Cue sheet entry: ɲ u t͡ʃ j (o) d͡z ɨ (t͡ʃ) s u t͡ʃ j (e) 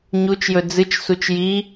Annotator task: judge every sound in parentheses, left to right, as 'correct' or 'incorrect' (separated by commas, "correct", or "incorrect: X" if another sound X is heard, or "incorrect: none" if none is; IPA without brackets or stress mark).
incorrect: ɵ, correct, incorrect: i